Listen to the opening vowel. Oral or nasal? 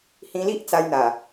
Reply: nasal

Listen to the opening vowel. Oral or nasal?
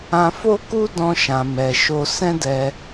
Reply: nasal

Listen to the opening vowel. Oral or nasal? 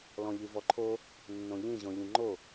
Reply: nasal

